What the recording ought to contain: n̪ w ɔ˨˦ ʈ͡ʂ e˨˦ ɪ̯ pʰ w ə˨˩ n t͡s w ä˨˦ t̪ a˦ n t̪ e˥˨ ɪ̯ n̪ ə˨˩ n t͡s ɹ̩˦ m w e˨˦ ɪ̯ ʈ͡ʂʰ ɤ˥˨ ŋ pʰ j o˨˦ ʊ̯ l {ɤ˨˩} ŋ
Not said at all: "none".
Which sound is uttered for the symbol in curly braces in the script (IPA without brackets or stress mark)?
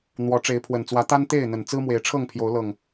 ɤ˨˩